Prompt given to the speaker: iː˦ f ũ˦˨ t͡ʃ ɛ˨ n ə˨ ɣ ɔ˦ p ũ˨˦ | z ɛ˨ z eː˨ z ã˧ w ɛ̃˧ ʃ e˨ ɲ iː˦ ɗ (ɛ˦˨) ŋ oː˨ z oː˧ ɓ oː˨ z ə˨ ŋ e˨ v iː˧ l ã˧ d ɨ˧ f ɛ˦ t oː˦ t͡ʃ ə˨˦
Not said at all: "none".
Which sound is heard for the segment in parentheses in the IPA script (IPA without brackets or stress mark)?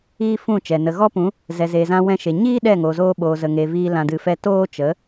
ɛ˦˨